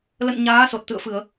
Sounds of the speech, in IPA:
l ə̰˧˨ n ɲ aː˨˦ s o˨˩ t̚ t̪ ɨ̰˧˨ ə̯ f ɨ˧˩˨ ə̯

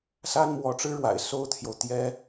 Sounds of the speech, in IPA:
s a˥ n m w ɔ˧˥ ʈ͡ʂ ɻ̩˥ ɻ w a̰˨˩ ɪ̯ s o˥ ʊ̯ t̪ʰ j o˨ ʊ̯ t̪ j ɛ˥

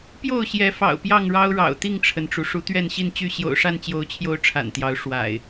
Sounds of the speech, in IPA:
p j o˥˨ ʊ̯ ɕ j ɛ˨˦ f ɑ̰˨˩ ʊ̯ p j ɑ˥˨ ŋ ɻ ɑ˦ ʊ̯ ɻ ɑ̰˨˩ ʊ̯ t̪ i˥˨ ŋ ʈ͡ʂʰ ə˩ n ʈ͡ʂ u˩ ʂ u˨˦ t̪ ɥ ɛ˥˨ n ɕ i˥˨ n t͡ɕ y˥˨ ɕ j o̰˨˩ ʊ̯ ʂ a˥˨ n t͡ɕ j o˨˦ ʊ̯ t͡ɕʰ j o˨˦ ʊ̯ ʈ͡ʂʰ a̰˨˩ n t̪ j ɑ˨˦ ʊ̯ ʂ w a̰˨˩ ɪ̯

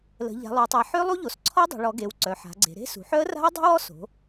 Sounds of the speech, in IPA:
l ə̤˩˧ ʎ a̤˩˧ lˠ o˩˧ tˤ e˩˧ ħ ø˦˥ lˠ u˦˥ ʎ o˩˧ s ǀʰ ɔ˦˥ dˤ o̤˩˧ ɭ ɔ˩˧ ɡ e˩˧ w ǀ œ˩˧ ħ a̤˩˧ ɡ͡ǀ e̤˩˧ ɾ e̤˦˥ s ṳ˩˧ ħ œ˦˥ ə̯ r a̤˦˥ ə̯ dˤ ṳ˦˥ w ɔ˦˥ s o̤˩˧

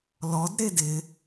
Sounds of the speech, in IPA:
l ɔ d ɾ e d ɪ

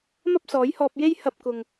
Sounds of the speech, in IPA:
m ɐ˥ p̚ s ɔː˨˥ j h ɔː˧ p̚ j e˥ j h ɐ˧ p̚ k ʊ˨ ŋ

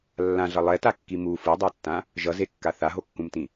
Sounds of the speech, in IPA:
lː ã ɮ ʌ lˠ ɛ t a kː i m u f ɯ dˤ a tː ã | ʒ ʌ z e kː a θ a ɦ o kː ũ m t ĩ

